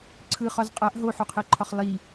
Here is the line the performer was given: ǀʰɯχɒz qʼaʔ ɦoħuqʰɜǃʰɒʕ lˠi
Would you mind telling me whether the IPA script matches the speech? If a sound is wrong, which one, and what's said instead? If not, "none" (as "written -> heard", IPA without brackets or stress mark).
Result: ʕ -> χ